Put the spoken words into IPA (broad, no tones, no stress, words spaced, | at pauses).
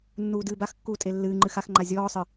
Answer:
nːuːdɨːbaxkːuː tʼelːɨːŋ͡ǃɨ xaxŋ͡ǃa zʲɔːsˤɨ